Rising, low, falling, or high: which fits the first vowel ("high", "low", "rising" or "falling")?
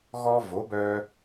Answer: high